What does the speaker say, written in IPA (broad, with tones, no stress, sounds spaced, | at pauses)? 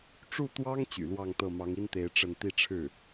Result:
ʈ͡ʂ u˥˩ t̪ w ɑ˥ ŋ t͡ɕ y̰˨˩ l w ɑ˥˧ ŋ t̪ ɤ˥˩ m ɑ˧˥ ŋ i˥ n t̪ e˧˥ ɪ̯ ʈ͡ʂ ə˥˧ n t̪ i˥˧ ʈ͡ʂʰ ɻ̩˥˩